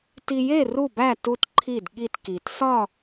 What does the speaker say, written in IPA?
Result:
t i˧ j e˥˨ r u˥˨ b æ˥˨ t u˧ t ǃʰ i˧˩ d ɠ i˧˩ t k i˩ t s ɒ˥˨

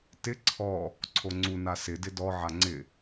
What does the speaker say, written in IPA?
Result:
t ɪ ǀʰ ɔ | ǀʰ o ŋ͡ǀ u n a s ɪ d ɪ d ɔ ʕ a ŋ͡ǀ ɪ

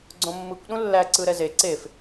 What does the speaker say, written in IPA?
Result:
ɡ͡ǀ õ mː ɯ kʷ ɗ ũ lː æ ǀ ɯ ɾ ɛ z e ǀ e f

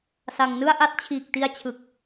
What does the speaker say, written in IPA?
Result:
s a˧ ŋ n ɯ˥˩ a̯ ʔ a˥˩ t̚ t͡ɕʰ iː˨˩ k̚ t i˧ a̯ t͡ɕʰ ɯ˨˩ k̚

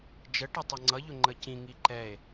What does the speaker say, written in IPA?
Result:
d͡ʒ ə ʈ ʌ tˤ ʌ ŋ͡ǀ ʌ ʎ ʊ ŋ͡ǃ ə c ĩ ŋ i ǃ ɛ e̯

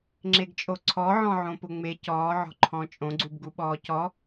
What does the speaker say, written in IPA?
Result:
ŋ͡ǁ e ɡ t͡ʃʼ o ǀʰ ɔ ʕ ɔ̃ ʕ õ p ʊ ŋ͡m e c ɔː ʕ ɔ̤ ǃʰ ɔ̃ t͡ʃʼ õ ɡ͡ǀ u b ɡ u ɓ ɔː c ɔ

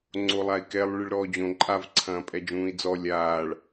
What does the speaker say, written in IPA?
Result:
ŋ͡ǀ o lˠ a i̯ k ɛ lˠ ɭ ɨ ɭ ɾ ɔː d͡ʑ õ ǃʼ a v ǀʰ ɐ̃ː pʼ ɛ d͡ʒ ũː i̯ d͡z ɔ lʲ aː ɭ

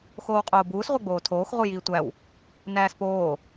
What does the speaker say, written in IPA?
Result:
x oː w qʼ oː b uː s ʁʷ e ɡ͡b oː tʰ oː x ʁ u j iː tʷ æ w | n æː s p oː

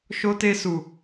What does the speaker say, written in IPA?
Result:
ʃ o˧ t e˧ s u˨

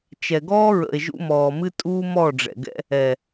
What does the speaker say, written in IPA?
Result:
t͡ʃ ɛ˨ ɡ ɔː˦ ɹ ə̰˨ e̯ ʒ ṵ˧ m ɔː˨ m ɨ˦ tʼ uː˦ m ɔ˦˨ ɖ͡ʐ ɛ̰˨ ɡ ɛ̰˦ | ɛ˨

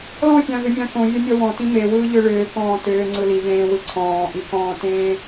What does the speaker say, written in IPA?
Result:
l ɔ̃ fʲ ã v ʏ mʲ ã k õ vʲ a mʲ ɔ w ɔ̃ t ĩ m e w ɯː ʎ ʏ ɭ ʏː k ɔ̃ː t ʏː ŋ͡ǀ ɯ l i v ẽː w ɯ ǀʰ ɔ̃ː ʔ i k ɔ̃ː t ẽː

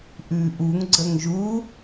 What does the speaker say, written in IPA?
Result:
ʔ ʉ ʔ u ŋ ɡ͡ǀ ə ŋ ʒ u

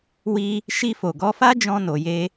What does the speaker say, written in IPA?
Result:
w i˧ | ʃ i˧ f o˨ ɡ ɔ˧ f a˦ d͡ʒ ɔ̃˧ n o˨ j e˧

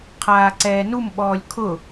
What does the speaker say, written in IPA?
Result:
qʰ aː ǀ ɛː n u m ɓ ɔː lʲ kʰ ʊ

